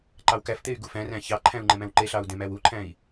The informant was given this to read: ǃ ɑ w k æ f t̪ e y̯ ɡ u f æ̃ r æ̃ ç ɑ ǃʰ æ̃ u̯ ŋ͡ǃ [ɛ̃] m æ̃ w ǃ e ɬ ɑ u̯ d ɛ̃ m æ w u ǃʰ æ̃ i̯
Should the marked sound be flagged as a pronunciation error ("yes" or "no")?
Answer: no